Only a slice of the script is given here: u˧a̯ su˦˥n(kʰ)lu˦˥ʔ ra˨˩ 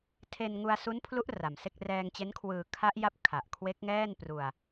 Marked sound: incorrect: pʰ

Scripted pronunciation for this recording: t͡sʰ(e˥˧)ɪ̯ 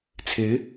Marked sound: incorrect: e˧˥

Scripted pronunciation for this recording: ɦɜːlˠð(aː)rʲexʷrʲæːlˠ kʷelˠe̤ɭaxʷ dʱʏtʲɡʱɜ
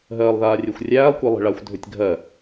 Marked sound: correct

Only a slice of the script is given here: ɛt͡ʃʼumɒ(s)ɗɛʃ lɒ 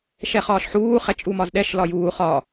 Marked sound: incorrect: z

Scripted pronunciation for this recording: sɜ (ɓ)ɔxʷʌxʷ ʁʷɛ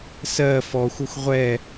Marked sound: incorrect: f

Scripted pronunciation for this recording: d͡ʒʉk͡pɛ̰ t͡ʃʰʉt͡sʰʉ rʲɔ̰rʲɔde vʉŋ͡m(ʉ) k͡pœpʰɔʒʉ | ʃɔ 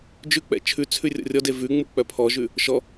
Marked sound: incorrect: u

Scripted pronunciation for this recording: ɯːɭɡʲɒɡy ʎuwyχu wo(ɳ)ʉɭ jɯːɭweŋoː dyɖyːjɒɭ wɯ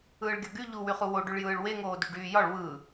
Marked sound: incorrect: ɖ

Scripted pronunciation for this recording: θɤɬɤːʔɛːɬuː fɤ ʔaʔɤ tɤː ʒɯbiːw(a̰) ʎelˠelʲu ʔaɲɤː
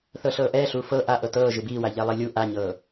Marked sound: incorrect: a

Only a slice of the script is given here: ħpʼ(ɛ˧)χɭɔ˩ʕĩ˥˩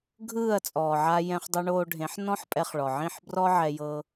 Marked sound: correct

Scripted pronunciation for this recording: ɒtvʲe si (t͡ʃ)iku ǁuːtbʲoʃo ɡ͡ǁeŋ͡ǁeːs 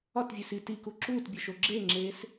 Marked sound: incorrect: t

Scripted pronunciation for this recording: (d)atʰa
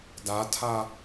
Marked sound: correct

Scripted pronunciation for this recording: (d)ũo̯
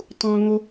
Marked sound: incorrect: tˤ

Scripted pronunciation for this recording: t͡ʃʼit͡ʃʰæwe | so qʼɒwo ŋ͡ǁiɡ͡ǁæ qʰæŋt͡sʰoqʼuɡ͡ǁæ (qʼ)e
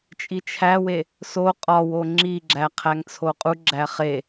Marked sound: incorrect: χ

